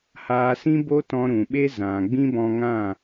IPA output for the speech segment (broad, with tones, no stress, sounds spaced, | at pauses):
h aː˧ s ĩ˦ b o˦ t ɔ̃˧ ɾ ũ˨ ɓ e˦ z ã˨ ɡ͡b ĩ˦ b ɔ̃˧ ŋ ã˦˨